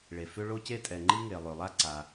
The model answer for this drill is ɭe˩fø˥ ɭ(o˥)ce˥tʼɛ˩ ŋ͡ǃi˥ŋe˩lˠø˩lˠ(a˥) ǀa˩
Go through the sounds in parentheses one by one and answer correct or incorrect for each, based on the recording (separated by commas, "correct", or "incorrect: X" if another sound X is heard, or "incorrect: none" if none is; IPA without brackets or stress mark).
correct, correct